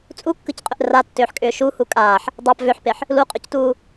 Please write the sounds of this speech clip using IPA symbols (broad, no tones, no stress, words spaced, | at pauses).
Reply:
t͡sʼukːɯcqʼʏʔ ratːʏːħkʼʏː ʃuhu kʼaːħ | dˤap vʏħpeħ | luqʼʏctuː